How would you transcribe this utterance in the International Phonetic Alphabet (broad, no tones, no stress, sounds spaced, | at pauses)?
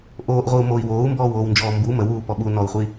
ʔ oː ʔ ʁʷ i u̯ m o i̯ w oː u̯ m b ɔː w oː w n d͡ʒ ɔː m b u m ə w uː p ɔ ɓ u n ɔ u̯ χʷ i